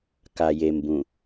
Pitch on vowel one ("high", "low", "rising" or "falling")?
low